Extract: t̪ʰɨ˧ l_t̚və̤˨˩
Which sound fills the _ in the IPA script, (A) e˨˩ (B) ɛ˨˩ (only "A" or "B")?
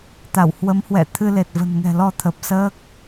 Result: A